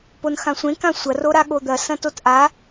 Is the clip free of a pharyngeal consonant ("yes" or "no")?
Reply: yes